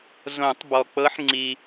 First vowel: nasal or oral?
nasal